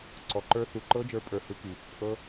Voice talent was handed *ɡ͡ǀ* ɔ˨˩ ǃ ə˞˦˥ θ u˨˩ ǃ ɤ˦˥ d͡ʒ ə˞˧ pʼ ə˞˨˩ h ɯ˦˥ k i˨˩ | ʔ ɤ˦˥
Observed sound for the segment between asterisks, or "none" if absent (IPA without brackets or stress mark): ǀ